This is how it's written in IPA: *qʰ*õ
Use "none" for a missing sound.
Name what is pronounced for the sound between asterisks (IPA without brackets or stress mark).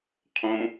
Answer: qʰ